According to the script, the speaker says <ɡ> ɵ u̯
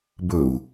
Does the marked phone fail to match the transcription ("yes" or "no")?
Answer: yes